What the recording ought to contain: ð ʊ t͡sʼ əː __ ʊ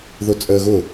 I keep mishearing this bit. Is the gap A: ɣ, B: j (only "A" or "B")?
A